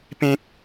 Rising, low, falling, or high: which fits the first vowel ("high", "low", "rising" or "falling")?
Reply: high